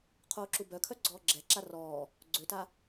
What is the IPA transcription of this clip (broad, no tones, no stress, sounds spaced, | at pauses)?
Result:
qʰ oː ǁ u b œ kʰ œ ɡ͡ǀ ɔː ɡ͡ǁ ɛ ǁ a r ɔː | ɡ͡ǀ ø t a